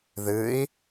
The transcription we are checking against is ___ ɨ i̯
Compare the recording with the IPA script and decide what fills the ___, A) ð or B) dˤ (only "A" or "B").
A